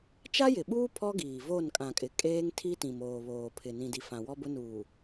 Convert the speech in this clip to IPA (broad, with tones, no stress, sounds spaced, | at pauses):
t͡ʃ a˦ j ɪ˨ ɓ uː˦ pʰ ɔ˦ ɡ iː˨ v o˦˨ n kʼ ã˨ kʼ ɪ˨ kʼ eː˦ ŋ tʰ i˦ t ĩ˨ m oː˨ β oː˨ pʰ ɪ˨ n ĩ˨ d i˨ f ã˨ w ɔ˦ b ʊ˦ n uː˨